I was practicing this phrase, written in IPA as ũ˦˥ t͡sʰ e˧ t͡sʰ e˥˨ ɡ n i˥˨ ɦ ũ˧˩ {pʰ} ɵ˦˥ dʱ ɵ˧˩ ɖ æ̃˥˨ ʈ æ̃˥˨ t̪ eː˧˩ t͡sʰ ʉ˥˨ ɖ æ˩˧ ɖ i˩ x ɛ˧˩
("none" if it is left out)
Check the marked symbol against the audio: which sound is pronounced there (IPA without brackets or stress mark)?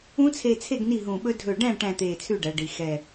ɓ